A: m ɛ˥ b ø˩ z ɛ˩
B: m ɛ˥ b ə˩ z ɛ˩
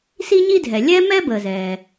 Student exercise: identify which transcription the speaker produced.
B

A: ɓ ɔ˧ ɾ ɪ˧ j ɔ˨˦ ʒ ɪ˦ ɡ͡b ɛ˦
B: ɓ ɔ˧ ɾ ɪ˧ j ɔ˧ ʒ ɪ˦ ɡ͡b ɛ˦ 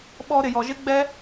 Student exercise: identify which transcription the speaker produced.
B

